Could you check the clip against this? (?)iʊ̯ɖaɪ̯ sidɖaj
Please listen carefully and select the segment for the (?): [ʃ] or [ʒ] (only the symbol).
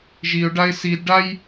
ʒ